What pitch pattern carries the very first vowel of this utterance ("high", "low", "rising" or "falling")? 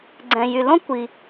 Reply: low